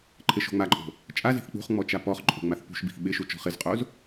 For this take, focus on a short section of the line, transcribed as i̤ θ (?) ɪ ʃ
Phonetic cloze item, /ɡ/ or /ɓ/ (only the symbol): ɓ